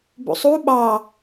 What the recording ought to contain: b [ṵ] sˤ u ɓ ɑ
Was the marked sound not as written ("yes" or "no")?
no